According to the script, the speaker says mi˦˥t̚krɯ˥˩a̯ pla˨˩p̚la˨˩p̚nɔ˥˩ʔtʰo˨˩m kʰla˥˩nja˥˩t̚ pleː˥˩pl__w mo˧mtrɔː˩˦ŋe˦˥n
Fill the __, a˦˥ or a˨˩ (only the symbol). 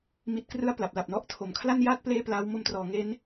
a˦˥